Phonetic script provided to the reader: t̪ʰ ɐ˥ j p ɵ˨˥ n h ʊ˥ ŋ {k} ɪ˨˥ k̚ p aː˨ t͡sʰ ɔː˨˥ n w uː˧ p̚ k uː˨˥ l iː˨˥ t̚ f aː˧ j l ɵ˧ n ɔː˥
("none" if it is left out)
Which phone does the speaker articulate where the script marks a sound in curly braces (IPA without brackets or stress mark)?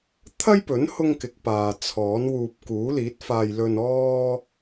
k